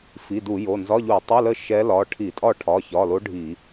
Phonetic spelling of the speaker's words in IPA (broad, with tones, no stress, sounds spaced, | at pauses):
f i˩˧˩ d u˧˩˧ j o˩˧˩ n z ɒ˧˥˧ ʎ u˧˩˧ tˤ i˧˥˧ l ə˥˨ ʃ ɛ˧˥ l ɒ˩˧˩ ʈʰ i˧˩˧ tʼ ɒ˥˨ ʈʰ ɒ˩˧˩ ç ɒ˩˧˩ l o˧˥ ɖʱ i˧˩˧